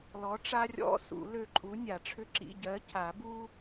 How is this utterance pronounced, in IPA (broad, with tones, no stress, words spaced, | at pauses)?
lɔ˨˥ʈ͡ʂa˥rʲɔ̰˧˥˧ sṵ˨˩˦ lø˦˨ǃʼu˨˥ nʲa˨˩˦ʈ͡ʂʰʏ˥ ǁḭ˧˥˧ ɟɜ˨˥cʰa˨˩˦bu˥